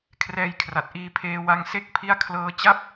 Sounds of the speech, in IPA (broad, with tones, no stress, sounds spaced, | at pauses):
kʰ r ɛː˧ j kʰ r a˨˩ t̚ ʔ iː˧ pʰ eː˧ w a˧ ŋ s e˦˥ k̚ pʰ i˦˥ a̯ kʰ l ɤː˧ t͡ɕ a˥˩ p̚